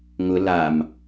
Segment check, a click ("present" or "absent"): absent